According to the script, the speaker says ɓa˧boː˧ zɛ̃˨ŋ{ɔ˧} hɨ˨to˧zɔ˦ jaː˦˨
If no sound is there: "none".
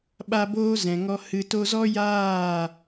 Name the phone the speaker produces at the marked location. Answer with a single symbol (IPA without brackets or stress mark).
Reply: ɔ˧